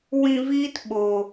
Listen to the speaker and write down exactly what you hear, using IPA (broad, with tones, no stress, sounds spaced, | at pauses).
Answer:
w ĩ˧ v iː˦ t ɓ o˨